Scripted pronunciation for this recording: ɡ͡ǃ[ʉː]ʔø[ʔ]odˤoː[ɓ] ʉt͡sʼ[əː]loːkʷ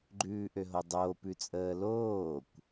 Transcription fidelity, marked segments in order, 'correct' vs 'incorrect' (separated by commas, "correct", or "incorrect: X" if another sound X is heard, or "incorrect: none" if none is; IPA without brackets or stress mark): correct, incorrect: ɦ, incorrect: p, correct